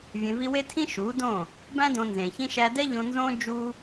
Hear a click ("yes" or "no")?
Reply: no